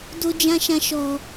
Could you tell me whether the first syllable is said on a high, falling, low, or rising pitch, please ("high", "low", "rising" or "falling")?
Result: high